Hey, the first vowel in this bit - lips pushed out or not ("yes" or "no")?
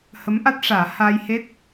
no